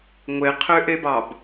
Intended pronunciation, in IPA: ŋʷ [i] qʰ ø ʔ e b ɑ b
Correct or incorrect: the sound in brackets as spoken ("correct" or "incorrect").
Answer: incorrect